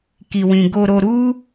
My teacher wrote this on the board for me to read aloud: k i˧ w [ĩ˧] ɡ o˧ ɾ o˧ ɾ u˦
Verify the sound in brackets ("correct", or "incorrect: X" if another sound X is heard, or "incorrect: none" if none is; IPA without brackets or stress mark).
correct